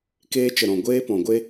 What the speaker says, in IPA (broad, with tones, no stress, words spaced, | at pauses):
keː˧t͡ʃə˨ɾɔ̃˨ ɡʷeː˦pɔ̃˨ɡʷe˦